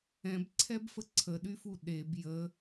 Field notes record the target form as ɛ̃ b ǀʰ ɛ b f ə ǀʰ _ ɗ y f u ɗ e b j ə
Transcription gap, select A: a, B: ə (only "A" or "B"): B